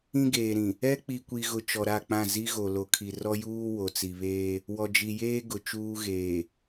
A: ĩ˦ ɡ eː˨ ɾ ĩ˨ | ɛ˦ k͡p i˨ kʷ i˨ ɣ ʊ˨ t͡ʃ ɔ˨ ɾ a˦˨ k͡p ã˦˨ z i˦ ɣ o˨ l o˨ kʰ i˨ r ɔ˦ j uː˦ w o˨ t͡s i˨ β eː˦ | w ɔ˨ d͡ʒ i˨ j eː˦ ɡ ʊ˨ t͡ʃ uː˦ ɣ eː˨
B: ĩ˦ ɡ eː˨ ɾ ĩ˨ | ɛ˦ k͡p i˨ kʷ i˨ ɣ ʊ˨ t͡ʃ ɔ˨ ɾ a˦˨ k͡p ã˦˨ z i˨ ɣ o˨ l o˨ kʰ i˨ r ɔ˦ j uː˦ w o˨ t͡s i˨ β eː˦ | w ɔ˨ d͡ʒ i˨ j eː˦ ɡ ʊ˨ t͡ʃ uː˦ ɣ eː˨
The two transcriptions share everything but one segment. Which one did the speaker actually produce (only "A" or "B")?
A